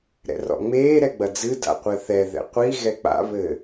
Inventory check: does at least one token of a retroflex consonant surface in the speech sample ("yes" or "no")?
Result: no